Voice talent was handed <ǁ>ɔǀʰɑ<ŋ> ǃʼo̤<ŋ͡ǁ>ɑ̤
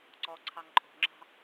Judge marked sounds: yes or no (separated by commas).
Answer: no, yes, yes